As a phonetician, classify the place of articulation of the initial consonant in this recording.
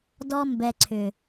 alveolar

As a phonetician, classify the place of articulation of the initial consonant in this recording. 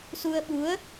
alveolar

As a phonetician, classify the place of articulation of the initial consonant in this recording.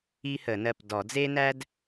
glottal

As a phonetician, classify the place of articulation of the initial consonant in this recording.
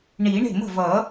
retroflex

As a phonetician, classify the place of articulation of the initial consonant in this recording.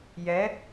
palatal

